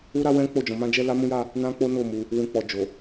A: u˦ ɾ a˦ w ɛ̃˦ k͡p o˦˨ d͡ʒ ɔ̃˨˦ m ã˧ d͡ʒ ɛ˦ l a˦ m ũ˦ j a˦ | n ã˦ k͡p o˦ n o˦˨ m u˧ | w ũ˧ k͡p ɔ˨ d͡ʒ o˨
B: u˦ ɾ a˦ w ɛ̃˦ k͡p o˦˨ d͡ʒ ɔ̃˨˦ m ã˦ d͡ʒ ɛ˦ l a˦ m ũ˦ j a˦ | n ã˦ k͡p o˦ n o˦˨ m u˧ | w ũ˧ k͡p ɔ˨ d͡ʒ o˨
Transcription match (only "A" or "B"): B